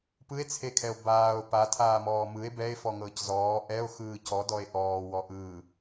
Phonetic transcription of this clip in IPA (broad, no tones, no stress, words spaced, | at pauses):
pɯe̯t͡sʰekʰɛo̯ baːo̯ patʰaːmɔː mɯe̯ bɛe̯fɔŋɤːc zɔː ʔɛo̯xɯː cɔdɔe̯ ʔɔːwɔ ʔɯ